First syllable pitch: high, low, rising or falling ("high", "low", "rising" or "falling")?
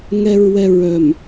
low